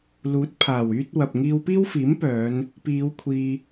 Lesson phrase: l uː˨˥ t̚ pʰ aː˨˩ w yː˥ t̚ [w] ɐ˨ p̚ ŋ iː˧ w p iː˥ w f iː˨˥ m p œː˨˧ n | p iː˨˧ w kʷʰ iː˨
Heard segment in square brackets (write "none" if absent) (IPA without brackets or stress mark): w